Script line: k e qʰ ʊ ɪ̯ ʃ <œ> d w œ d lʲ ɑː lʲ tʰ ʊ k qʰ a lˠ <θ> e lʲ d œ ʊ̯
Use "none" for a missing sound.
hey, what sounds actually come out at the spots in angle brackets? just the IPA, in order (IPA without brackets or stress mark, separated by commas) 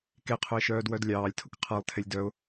œː, tʰ